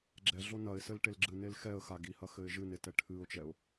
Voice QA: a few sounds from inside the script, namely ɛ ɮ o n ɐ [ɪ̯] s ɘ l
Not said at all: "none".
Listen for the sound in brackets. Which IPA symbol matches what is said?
ɪ̯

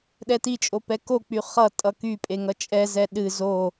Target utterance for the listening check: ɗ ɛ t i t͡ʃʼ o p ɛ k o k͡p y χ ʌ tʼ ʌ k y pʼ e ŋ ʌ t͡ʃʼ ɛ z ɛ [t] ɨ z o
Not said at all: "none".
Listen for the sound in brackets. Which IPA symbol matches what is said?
ɗ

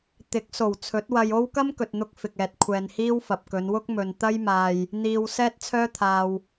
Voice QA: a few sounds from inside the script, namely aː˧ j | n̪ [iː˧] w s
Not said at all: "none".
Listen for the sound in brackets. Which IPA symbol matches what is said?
iː˧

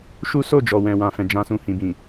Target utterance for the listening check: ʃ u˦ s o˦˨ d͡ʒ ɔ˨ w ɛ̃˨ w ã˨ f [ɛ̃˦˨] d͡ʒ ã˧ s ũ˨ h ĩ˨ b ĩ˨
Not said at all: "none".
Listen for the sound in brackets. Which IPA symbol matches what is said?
ɛ̃˨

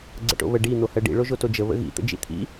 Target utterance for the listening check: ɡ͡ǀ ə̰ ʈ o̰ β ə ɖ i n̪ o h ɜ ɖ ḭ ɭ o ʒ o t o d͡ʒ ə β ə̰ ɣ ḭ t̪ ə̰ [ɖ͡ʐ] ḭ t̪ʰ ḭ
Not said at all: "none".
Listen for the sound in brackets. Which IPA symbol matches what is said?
d͡ʒ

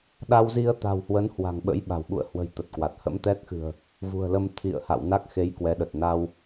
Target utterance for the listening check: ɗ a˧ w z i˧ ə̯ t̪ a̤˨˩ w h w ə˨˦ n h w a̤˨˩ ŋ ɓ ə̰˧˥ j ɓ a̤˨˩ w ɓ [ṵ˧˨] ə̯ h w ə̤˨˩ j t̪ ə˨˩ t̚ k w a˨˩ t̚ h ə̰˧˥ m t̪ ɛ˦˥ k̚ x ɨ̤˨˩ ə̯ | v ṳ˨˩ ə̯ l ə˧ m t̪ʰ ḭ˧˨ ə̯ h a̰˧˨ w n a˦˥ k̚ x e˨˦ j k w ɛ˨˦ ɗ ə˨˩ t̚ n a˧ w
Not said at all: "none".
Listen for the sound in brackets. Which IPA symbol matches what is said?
ṵ˧˨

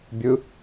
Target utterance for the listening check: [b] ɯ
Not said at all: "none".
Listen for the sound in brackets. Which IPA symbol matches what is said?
bʲ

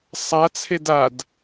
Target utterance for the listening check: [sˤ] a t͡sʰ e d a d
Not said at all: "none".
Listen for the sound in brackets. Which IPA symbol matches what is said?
sˤ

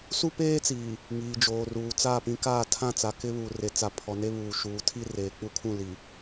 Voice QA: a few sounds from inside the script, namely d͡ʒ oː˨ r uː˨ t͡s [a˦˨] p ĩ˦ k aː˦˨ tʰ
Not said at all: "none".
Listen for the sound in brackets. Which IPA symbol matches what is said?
a˦˨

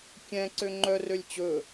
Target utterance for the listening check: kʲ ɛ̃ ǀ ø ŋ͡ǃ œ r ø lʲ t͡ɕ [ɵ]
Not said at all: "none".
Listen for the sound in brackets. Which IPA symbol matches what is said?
ɵ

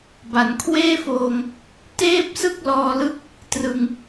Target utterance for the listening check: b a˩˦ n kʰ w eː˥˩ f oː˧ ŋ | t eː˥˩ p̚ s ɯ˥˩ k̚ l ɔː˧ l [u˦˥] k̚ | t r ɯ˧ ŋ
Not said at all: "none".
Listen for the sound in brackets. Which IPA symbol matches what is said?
ɯ˦˥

